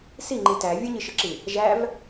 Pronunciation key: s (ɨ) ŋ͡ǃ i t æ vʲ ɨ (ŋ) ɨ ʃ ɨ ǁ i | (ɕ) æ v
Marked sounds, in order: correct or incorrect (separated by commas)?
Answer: incorrect, incorrect, incorrect